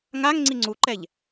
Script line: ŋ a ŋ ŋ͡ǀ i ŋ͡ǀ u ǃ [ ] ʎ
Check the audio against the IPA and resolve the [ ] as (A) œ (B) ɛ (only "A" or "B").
B